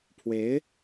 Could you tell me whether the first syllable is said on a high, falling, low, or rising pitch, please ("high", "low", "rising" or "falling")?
rising